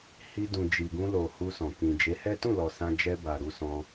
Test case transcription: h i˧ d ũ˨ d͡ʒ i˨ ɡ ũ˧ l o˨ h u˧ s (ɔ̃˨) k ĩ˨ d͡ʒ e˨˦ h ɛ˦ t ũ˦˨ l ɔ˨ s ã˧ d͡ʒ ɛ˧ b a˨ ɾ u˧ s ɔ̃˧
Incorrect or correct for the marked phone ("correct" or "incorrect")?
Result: correct